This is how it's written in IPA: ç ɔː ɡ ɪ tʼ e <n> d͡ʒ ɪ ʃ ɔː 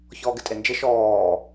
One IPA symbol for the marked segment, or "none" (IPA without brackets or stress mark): n